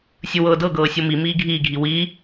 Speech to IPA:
sʲɯwɤːdɤɡɤː sʲɤmi miːɡʱiːɡʱi wi

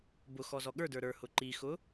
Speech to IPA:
bʊxɔzɔ ɠə˞də˞ ɾə˞hʊ ǃixʊ

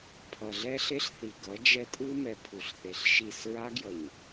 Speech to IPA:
pʰʌ˨ɮɛ˦ɬe˦ɬθi˨ ɡʌ˨˦d͡ʒɛ˦ tʼɯ˦mɛ˨ pʰu˨ɬθe˨ɬʃi˦˨s ɹa˦ɡjʌ˨ɲ

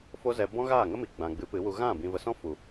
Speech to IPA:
fo˦zɛ˧ bɔ̃˦ɣaː˦˨ŋə˦mi˨ ɡ͡bã˨ɡ͡bɨ˨˦pɨ˨˦wu˧ ɣã˦˨ bĩ˨və˨sɔ̃˦ fu˨

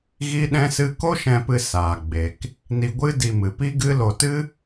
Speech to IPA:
ɣi˦ɗɛ̃˦sɨ˦ ko˦ʃɛ̃˧pɨ˧ saː˨ɡ͡be˨k | ni˧ɡʷɨ˦di˧mɨ˨ pi˦ɡɨ˦lo˧ tɨ˦

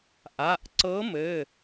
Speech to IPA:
ʔa˩˧˩ʔǀɤ˧˥mɘ˩˧˩

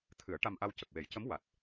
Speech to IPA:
t̪ʰɨ˨˩˦ə̯ʈa˧mʔa˧w cə˨˩k̚we˨˩˦jcə˧˥m wa˨˩t̚

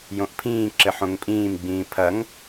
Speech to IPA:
jõʔpʰĩːǁɘ ħõŋpʼĩːmɡ͡bĩː pʰɐŋ

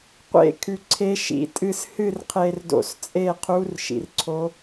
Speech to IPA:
qʷḛ˦˨kʰʉ˨ ǀʰe˧˥ʃḭ˨tʼɨ˦˨s hɨ˦˨rqʰe˨rdo̰˨st͡sʼe˦˨ qʰu˧˥rʃḭ˨rǀʰo˧˥

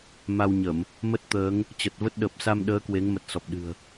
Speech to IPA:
ma˧wɲə˧˩˨m | mə˦˥t̚t̪əː˨˦ŋ | t͡ɕə˨˩t̚və˦˥t̚ɗə˨˩p̚ sa˧mɗəː˨˦ kwe˨˦ŋmə˨˩t̚sɔ˨˩p̚ ɗɨ̤˨˩ə̯

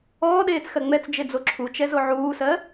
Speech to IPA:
ɔːɗeːt͡sxɜ ŋ͡mɛt͡sd͡ʒed͡zo ǁʰut͡ʃɛzo ʕuːsɜ

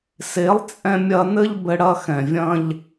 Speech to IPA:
se˨˦lˠt͡sʼɛ̃˧mʲɐ˧ nɘ˦ʎbɘ˧ɽɐ˧ xɛ̃˨vʲɐ̃˧ʎ

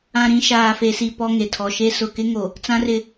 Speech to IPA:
ã˨ɾĩ˨ ʃaː˨fe˨si˨ pɔ˦ŋe˨ tʰɔ˨ʃe˦ sʊ˨kɪ˦ŋo˨ | t͡sã˦rɪ˦

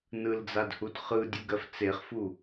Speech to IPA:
nɯld͡zadhud χɯdʲuɡɜf t͡seχfu

